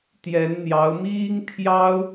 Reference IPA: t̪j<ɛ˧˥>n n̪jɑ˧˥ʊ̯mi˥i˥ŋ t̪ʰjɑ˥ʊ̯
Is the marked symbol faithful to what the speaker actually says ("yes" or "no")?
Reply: yes